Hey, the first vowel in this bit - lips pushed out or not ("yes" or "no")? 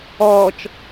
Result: yes